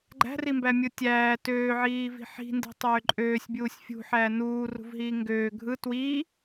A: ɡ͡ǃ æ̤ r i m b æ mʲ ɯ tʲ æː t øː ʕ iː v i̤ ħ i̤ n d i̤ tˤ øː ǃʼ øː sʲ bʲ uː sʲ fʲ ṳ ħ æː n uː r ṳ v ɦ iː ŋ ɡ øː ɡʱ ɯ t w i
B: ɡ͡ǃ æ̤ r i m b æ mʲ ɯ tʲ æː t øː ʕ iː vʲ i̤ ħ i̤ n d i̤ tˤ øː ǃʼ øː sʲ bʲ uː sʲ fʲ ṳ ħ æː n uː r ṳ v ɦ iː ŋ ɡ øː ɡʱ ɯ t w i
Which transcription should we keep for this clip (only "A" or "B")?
A